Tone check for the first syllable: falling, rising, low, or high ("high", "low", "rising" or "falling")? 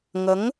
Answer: rising